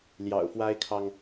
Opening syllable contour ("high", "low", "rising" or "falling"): low